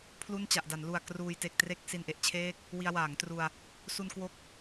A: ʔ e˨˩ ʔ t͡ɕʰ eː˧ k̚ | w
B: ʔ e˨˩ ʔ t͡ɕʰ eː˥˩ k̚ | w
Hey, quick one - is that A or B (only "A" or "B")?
B